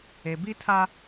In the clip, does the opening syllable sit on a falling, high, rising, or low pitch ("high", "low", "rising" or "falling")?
low